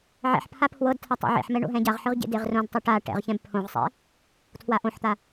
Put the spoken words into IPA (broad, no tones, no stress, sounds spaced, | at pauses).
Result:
ʕ ɛ̰ ħ pʰ a pʰ w ɤ d tʰ a tˤ ɛ̰ ʕ ḛ ħ m ɛ ɳ o̰ ɦ ɛ̃ ɟ a ʁ ħ ɯ ʁ ɟ ḛ d e ʁ r õ d tˤ o ʈ a ʈ ɛ̰ ʁ ç ɛ̃ b pʰ õ ʁ sˤ ɛ̰ | tʰ w a ʔ õ ħ t̪ a